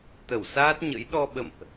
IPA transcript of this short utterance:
t̪ ə˧˩ w s aː˦˥ t̚ ɲ ə̰˧˥ j ɗ ɔ˧ ɓ ə̰˧˨ m ʔ

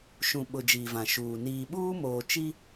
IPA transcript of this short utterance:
ʃ ũ˨ ɓ ʊ˨ d͡ʒ iː˨ v ã˨ ʃ uː˨ n iː˨ ɓ uː˦ m oː˨ t͡ʃ i˦

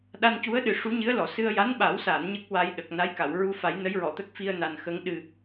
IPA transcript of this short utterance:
ɗ a˧ n c u˧˥ ə̯ ɗ ɨ˨˩ ʂ u˧˥ ɲ ɨ˧˥ ə̯ l ɔ˨˩˨ s ɨ˧ ə̯ j a˧˥ n ɓ a˨˩˦ w s a˨˩˨ n ɲ ə˦˥ k̚ w a˧ j ɗ ə˨˩ k̚ n a˧˥ j k a˨˩˨ w ɹ u˧ f a˨˩˦ j n ə˧˥ j ɹ ɔ˨˩˨ t̪ ə˦˥ k̚ f i˧ ə̯ n a˨˩ n x ə˧˥ ŋ ɗ ɨ˨˩

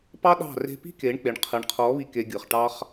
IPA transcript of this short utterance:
p ɑ˦ ɗ ɑ̤˦˨ r e̤˧ p i̤˦ k e˨˦ ɳ k͡p e˨ ɳ qʰ ɯ˨ ɳ qʰ ɔ˨˦ β i˧ k e˧ ɡʲ ɯ˨ χ ʈ ɑ˦ χ

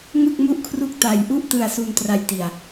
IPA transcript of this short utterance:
ŋ ɯ˥˩ k̚ m u˥˩ ʔ kʰ r u˥˩ k̚ t a˧ j ʔ u˥˩ ʔ t ɯ˧ a̯ s u˧ n t r a˧ j t i˧ a̯

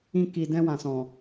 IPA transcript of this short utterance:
ĩ˧ k i˨ d ɛ̃˧ w ã˨ s ɔ̃˨

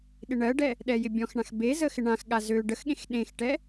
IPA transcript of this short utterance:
ɗ ɪ ɳ ɜ ɖ ɛ | ɗ ɛ j ɪ bʲ ɔ̃ x ɳ ã x b e z ə x ɪ ɳ ã x ɠ a z ø ɖ ə x ɠ ẽ x ɗ ẽ x ʈ ɛ

